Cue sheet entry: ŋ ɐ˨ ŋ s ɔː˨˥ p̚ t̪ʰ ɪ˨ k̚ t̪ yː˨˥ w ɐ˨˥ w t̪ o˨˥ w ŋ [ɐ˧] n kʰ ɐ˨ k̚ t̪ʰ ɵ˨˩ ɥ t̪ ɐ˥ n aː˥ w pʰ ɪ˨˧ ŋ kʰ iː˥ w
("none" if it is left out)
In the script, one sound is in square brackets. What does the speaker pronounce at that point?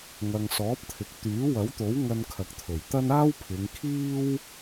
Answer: ɐ˧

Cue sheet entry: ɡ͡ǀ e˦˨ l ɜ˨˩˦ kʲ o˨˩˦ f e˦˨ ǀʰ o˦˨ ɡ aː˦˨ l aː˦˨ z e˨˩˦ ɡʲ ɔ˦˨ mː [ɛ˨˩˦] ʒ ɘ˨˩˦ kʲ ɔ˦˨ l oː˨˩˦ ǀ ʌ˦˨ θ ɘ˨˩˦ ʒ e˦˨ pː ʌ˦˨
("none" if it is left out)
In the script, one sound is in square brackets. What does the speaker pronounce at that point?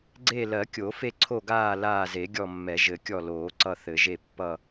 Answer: ɛ˨˩˦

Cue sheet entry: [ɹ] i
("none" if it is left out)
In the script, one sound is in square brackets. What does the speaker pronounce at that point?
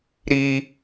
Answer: ɾ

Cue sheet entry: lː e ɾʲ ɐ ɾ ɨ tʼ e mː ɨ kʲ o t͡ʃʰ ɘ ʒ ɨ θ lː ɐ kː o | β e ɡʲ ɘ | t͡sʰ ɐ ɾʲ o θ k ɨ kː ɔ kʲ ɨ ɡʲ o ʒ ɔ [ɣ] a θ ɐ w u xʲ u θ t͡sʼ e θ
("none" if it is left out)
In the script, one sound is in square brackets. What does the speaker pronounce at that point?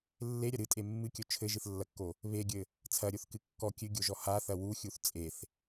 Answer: h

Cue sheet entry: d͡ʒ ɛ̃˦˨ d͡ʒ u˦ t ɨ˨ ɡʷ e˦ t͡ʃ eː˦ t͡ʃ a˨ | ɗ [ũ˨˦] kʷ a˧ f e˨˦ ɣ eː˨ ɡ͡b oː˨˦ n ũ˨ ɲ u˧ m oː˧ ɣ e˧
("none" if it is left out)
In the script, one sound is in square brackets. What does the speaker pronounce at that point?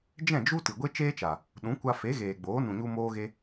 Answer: ũ˨˦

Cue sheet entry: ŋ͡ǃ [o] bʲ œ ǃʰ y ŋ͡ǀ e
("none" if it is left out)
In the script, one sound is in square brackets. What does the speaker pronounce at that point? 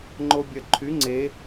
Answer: o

